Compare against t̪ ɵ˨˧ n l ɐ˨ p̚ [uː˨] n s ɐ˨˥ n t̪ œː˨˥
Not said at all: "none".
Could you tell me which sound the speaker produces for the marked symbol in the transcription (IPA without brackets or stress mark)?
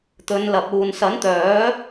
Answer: uː˨